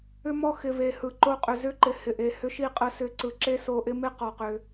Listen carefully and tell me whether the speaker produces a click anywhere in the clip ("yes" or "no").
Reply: yes